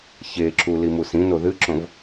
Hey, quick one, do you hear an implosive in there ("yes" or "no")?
no